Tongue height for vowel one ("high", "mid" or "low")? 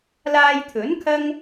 low